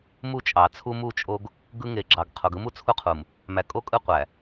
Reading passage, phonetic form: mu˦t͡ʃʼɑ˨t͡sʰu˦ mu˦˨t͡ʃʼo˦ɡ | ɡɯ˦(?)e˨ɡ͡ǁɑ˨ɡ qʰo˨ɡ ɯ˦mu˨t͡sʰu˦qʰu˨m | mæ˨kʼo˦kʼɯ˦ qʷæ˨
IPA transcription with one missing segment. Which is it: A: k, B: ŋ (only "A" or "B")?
B